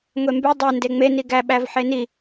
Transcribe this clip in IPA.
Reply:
ŋʷ e m b ʉ dˤ œ n d e ŋ͡m e n i ɡ æ ɓ æ v ħ e n i

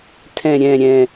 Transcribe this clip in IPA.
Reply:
tʰ ɛ̃˨˩ ɾʲ ɛ̃˨˩ ɾʲ ɛ̃˨˩

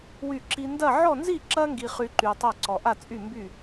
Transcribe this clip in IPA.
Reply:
w y˧˩ ǁ i˧ n d ɐ˥˧ ʕ ɔ˥˧ n z i˥˧ ǁ ɐ˥ ŋ ɡ i˧ χ y˧ ǃ y˧ tˤ ɐ˥˧ ǀ ɔ˧ ʔ a˥˧ t͡sʼ y˥˧ m b y˥˧

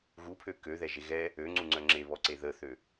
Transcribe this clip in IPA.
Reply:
ɣ u pʰ ø k ø ð ɛ ʒ e ɣ ɛ | ø ŋ͡ǀ u ŋ͡ǀ œ ŋ͡ǁ e β ɔ ǀ e ð ə θ ø

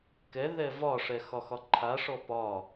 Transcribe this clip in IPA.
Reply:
k ɛ ð ɛ v ɒ ʂ ɛ x ɒ x ɒ ǃʰ a ʂ ɔ p ɒ

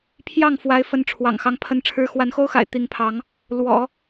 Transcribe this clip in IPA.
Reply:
pʰ j ɑ˥˩ ŋ f w a˧˥ ɪ̯ f ə˧˥ n ʈ͡ʂʰ w ɑ̰˨˩ ŋ x ɑ˧˥ ŋ pʰ ə˧˥ n ʈ͡ʂʰ ɻ̩˧˥ x w a˧˥ n x o˥ ʊ̯ x a̰˨˩ ɪ̯ t̪ i˧˥ ŋ pʰ ɑ˧˥ ŋ | l w ɔ̰˨˩˦

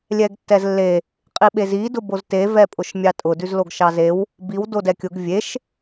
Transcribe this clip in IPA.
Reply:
lʲ ɛ ɡ tː ɛ z lː e | qʼ i ɓ e z i d ʊ b o z t e v ɛ pʼ ʊ ʃ mʲ ɑ tʼ ʊ d ʉ z l o ɡ ʃ ɑ z e w | b i w d o d ɛ kʲ ʊ ɡ vʲ e ʃ

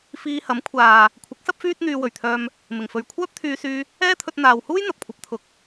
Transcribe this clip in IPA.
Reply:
f iː˧ h ɐ˨˥ m kʷʰ aː˨ | kʷʰ ɪ˨˥ k̚ s ɐ˥ p̚ f yː˥ t̚ n̪ yː˧ w ɵ˨˩ ɥ t̪ʰ œː˧ m | m ɪ˨˩ ŋ f ɵ˨ ɥ kʷʰ œː˥ p̚ t̪ʰ yː˧ s yː˧ | ɛː˥ t̪ʰ ɵ˧ t̚ n̪ aː˨ w h uː˥ j n̪ ɐ˨ p̚ kʷʰ ɐ˨ p̚ t̪ʰ ʊ˨˥ k̚

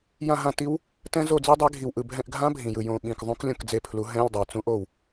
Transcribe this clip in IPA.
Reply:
j ã˦˨ ɦ ã˦˨ t i˦˥ w | t ɛ̃˦˥ z o˦˨ d͡z e˦˥ dˤ ɛ˨˥ ɡʱ i˨˩ w ʔ ɯ˨˩ bʱ ɛ̃˦˨ ʔ ɡʱ ã˦˥ bʱ ĩ˨˩ j ɯ˨˩ j õ˨˩ ɓ ĩ˨˩ k ðˤ ũ˦˥ k lʲ õ˦˨ k d͡z e˦˨ pʰ l u˨˥ ɦ ɛ̃˧˥˧ lʲ dˤ ɛ˨˩ t͡s ũ˦˥ ʔ o˦˨ w

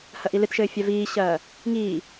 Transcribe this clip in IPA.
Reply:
h ɐ ʔ i l ɨ t ʃ ɘː fʲ a v iː ɕ ɐː | ŋ iː

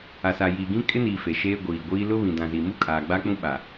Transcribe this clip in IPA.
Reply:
a˨ s a˨ j iː˨ ɡ ĩ˦ kʼ ɪ˦ n iː˨ f e˨ ʃ eː˦ ɡʷ iː˨ ɡʷ iː˦ l ʊ˦ β ĩ˨ d ã˨ z iː˨ m u˦ kʼ aː˨ ɡ͡b a˦ k͡p ũ˦ ɓ a˨

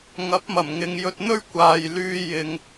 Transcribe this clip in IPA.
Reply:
ŋ ɐ˨˥ p̚ m ɐ˨˩ m ŋ ɪ˨ ŋ j ɵ˧ t̚ n̪ ɵ˥ ɥ kʷ aː˨ j l yː˧ j ɪ˨ ŋ

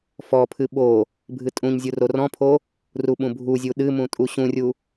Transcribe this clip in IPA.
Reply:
f ɔ pʰ ɨ ɓ o | bʱ ɨ tʼ ũ ɲ zʲ u r o r ɔ̃ pʰ o | r u ɓ ũ bʱ u zʲ u ɗ ɨ m ũ tʼ u ɕ ũ rʲ u

